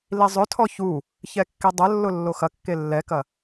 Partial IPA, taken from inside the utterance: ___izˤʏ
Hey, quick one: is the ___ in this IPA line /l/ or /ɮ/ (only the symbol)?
l